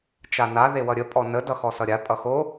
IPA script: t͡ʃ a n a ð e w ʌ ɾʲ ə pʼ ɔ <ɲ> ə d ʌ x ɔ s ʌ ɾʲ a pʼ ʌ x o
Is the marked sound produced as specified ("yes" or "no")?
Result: no